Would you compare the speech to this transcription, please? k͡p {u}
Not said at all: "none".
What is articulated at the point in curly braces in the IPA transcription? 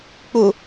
u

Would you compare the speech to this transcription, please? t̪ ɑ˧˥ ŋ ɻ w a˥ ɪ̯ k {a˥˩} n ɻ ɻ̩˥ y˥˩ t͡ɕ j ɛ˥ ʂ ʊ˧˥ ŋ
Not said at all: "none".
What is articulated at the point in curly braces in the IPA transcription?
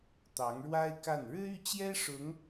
a˥˩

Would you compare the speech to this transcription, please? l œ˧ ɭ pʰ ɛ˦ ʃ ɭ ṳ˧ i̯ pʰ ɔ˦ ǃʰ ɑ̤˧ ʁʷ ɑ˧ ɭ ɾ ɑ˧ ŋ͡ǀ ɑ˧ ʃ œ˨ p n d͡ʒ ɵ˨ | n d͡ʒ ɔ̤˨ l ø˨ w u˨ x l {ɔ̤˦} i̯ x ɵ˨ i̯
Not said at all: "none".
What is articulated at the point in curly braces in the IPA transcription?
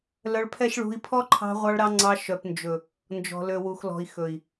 ɔ̤˨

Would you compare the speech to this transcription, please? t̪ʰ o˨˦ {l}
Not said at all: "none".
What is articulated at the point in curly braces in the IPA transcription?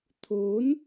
n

